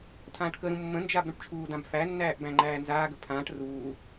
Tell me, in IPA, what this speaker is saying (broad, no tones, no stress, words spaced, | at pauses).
tʰãːʈkəɾũ mːə̃nd͡ʒab ɾũʈt͡ʃʰuːdãb fænːæːʔ bæ̃ŋ͡ǃæːnzaːɡə pʰãːʈ ruː